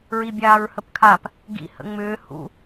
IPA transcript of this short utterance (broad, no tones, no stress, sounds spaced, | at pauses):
ɹ i bʲ aː ɹ h ə p kʰ a p | ɡ ḭ h ə̰ ŋ͡m ʏː h ṵ